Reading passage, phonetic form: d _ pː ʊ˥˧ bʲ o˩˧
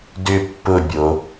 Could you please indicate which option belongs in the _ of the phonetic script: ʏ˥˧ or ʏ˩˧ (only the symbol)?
ʏ˥˧